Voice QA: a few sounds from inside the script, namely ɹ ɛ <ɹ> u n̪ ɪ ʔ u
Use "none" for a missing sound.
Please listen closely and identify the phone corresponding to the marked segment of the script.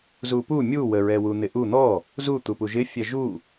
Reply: w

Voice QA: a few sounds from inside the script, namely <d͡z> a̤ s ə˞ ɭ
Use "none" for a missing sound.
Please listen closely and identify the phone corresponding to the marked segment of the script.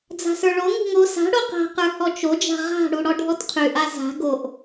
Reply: d͡z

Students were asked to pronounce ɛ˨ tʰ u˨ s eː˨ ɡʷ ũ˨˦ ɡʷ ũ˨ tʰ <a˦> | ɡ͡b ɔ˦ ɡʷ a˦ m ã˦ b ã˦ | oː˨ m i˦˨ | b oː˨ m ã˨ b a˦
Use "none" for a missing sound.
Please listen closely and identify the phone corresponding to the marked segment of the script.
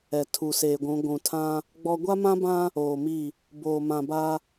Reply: ã˦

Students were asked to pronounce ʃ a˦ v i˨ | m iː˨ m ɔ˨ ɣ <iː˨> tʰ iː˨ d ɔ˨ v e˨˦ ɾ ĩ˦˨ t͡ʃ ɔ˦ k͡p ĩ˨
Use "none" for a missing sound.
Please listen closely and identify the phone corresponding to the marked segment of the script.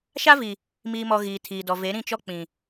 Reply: iː˨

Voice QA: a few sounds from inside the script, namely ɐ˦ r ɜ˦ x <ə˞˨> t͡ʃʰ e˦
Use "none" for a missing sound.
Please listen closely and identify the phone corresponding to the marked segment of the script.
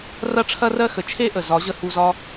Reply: ə˨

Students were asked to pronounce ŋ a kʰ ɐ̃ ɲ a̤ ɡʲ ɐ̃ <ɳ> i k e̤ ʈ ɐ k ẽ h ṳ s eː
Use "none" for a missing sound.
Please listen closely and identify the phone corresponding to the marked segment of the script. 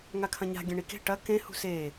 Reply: ɳ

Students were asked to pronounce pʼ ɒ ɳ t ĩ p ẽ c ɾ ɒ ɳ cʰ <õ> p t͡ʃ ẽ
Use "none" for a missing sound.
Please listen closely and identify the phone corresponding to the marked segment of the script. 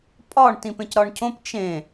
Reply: õ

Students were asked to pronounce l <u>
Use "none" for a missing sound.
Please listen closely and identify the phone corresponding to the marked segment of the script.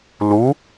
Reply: u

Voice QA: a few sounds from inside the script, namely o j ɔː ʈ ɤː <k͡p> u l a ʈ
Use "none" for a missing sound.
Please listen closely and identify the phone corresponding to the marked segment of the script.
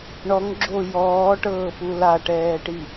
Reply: p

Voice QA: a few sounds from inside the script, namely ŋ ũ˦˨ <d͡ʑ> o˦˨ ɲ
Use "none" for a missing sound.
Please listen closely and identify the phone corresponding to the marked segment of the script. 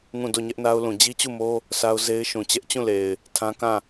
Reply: d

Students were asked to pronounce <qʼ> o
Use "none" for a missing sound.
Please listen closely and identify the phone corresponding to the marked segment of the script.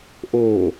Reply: ʔ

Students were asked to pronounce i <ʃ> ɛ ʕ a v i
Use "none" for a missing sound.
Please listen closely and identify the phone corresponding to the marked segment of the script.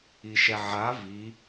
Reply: ʃ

